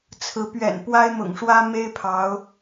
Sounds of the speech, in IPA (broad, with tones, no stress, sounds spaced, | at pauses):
t͡sʰ ɹ̩˨˦ p ɥ ɛ̰˨˩ n p w a˦ ɪ̯ m ʊ̰˨˩ ŋ ʂ w ä˦ m e˦ ɪ̯ pʰ ɑ˨˦ ʊ̯